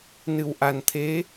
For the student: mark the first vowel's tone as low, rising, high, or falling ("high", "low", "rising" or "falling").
low